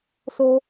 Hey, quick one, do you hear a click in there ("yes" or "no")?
no